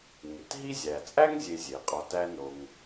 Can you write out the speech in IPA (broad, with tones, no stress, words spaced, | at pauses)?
ŋe˩tɦi˥ zʲæ˩t͡sʼæ˥ŋ zʲe˧zʲe˩qʼɒ˧ tæ˥no˧ŋ